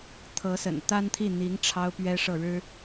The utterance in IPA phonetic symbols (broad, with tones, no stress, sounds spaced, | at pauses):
t̪ʰ ɤ˧˥ s ə̰˨˩ n t̪ a˥ n t̪ʰ i˥˩ n̪ i˧˥ ŋ ʈ͡ʂʰ ɑ˥ ʊ̯ p ɥ ɛ˥ ʂ ɤ˥˩ ɻ ɻ̩˥